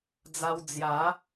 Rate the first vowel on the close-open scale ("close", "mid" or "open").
open